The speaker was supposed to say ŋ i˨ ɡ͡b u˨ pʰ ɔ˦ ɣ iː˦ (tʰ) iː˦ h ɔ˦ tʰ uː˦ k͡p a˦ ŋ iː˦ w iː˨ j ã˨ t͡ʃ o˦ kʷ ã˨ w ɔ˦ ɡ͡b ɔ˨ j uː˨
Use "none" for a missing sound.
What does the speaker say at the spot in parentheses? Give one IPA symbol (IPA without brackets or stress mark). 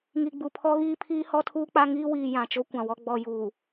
pʰ